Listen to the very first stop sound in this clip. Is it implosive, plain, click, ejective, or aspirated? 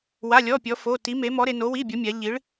plain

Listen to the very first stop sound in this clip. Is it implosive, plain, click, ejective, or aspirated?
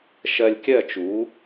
plain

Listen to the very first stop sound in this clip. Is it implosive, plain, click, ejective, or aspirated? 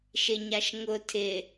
aspirated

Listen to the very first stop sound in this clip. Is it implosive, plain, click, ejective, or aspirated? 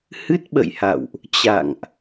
plain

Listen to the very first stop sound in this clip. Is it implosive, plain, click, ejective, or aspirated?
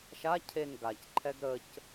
aspirated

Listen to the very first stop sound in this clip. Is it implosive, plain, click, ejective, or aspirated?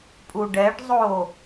ejective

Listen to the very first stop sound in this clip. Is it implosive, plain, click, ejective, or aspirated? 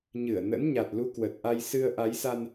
plain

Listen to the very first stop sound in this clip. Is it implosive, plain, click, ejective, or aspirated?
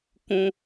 plain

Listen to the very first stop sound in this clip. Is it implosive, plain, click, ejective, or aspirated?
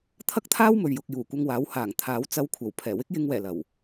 aspirated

